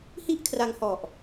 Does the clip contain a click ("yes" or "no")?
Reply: no